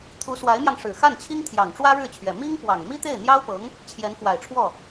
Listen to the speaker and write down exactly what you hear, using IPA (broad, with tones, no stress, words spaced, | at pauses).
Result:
t̪ʰu˧˥swa˧˥ɪ̯mjɑ˧ŋ ʂɻ̩˨˩xa˥˩nt͡ɕʰi˥ŋt̪ʰjɑ˨˩ŋ ʈ͡ʂwä˥ɻɻ̩˥˩t͡ɕʰɥɛ˨˩ mi˥ŋ pwɑ˨˩ŋ mi˥t̪e˥˩ɪ̯n̪jɑ˥ʊ̯pɤ˧˥ŋ | t͡ɕʰjɛ˧˥nfwa˨˩ɪ̯ʈ͡ʂʰwɔ˥˩